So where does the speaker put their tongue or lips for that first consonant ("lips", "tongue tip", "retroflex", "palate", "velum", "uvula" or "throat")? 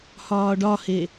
throat